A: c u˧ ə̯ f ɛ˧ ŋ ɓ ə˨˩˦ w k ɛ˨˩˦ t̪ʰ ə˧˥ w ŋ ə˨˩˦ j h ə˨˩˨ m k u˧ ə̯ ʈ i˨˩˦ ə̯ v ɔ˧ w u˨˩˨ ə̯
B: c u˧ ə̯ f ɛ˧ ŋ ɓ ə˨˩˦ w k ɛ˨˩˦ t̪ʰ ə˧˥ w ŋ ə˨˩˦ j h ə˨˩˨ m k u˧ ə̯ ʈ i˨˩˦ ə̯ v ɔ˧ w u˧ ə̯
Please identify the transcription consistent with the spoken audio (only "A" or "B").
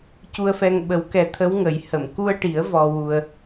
B